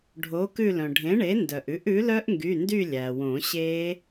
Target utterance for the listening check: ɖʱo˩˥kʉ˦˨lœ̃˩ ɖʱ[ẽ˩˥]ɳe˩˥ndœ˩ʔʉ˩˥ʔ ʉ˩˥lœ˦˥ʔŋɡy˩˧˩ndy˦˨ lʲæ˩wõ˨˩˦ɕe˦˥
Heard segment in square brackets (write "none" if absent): ẽ˩˥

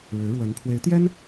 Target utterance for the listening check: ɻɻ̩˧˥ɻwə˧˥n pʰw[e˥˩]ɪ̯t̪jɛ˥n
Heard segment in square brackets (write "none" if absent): e˧˥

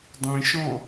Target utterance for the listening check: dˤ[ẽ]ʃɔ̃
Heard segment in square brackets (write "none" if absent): ĩ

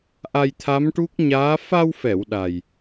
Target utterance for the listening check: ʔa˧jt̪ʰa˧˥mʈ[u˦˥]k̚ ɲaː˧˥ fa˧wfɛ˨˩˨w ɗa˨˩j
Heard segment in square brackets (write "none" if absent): u˦˥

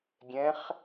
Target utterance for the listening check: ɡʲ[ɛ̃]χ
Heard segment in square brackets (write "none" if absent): ɛ̃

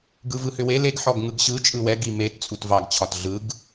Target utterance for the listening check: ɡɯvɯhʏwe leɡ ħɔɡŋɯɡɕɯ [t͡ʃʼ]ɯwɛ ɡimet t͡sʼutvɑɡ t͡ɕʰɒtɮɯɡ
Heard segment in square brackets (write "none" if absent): t͡ʃʼ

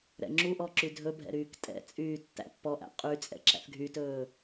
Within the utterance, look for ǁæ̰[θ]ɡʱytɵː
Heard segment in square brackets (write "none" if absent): θ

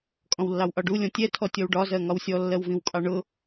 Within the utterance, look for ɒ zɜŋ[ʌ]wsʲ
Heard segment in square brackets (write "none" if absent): ɒ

